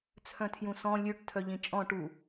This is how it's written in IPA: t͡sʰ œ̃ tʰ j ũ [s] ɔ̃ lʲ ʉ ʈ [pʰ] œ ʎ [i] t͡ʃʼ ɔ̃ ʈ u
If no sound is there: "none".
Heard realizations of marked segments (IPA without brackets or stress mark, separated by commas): s, tʰ, ĩ